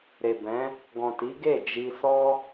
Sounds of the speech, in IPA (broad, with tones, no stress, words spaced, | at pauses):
ɾe˨bɛ̃˨˦ | ɡɔ̃˨ti˨˦ ɡe˦˨ d͡ʒi˧sɔ˦